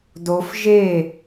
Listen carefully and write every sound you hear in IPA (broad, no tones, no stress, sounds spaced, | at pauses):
d o f ʒ e